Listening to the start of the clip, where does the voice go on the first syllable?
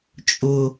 low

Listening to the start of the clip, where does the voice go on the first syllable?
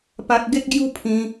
high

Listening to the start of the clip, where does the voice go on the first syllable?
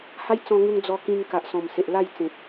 high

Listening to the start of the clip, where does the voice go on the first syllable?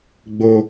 high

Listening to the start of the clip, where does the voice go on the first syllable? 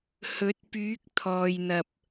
rising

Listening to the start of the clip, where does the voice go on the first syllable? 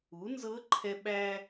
rising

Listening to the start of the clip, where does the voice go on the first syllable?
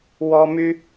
high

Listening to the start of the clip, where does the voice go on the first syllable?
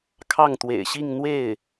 falling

